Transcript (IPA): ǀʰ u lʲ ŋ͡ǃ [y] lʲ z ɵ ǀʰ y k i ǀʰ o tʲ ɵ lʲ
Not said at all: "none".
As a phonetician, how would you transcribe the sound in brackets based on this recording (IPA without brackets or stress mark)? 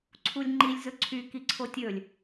i